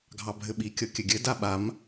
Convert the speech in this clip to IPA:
ɡʱ ɑ bʱ ɘ ɓ i kʲ ɤ kʲ ɘ ɡʲ ɘ d a ɓ a m

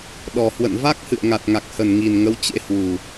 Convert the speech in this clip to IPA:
ɗ ɔ˨˩ h w ə̰˧˨ n v a˦˥ k̚ h ɨ̰˧˨ ə̯ ŋ a˨˩ t̚ ŋ a˨˩ k̚ h ə˨˩ n ŋ i˨˩ n ŋ ə˨˦ w t͡ɕ ḛ˧˥ h w u˨˩

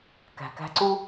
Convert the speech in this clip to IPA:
k æ̤˨ k æ̤˧ ǀ u˦

